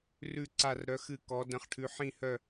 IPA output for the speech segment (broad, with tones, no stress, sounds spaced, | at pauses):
r ʉ˥˧ ǀ a˥˧ r ɾ œ˧˥ x ɨ˥˧ k ɔ˧˥ d ə̃˧˥ χ ʈʰ ʉ˧˥ ħ ĩ˥˧ h œ˥˧